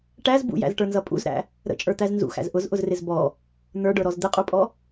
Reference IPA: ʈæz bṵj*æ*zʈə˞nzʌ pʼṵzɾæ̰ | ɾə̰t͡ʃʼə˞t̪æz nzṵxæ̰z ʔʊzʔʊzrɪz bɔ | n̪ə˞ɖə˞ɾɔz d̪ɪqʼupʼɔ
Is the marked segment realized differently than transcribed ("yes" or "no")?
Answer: yes